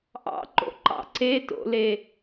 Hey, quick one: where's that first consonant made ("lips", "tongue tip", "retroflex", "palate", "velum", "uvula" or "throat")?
throat